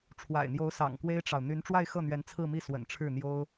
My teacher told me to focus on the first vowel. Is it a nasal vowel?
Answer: no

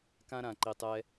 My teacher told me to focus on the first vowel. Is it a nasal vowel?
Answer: yes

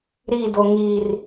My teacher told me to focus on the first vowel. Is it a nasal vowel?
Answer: no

